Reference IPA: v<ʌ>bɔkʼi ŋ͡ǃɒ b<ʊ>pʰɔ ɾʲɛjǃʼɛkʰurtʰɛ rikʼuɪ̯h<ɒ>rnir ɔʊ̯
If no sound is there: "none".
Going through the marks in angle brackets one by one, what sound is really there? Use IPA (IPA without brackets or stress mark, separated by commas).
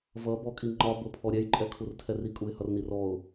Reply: ʌ, ʊ, ʌ